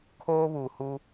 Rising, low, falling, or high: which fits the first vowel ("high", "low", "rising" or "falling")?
high